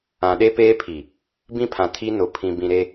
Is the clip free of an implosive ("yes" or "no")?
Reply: no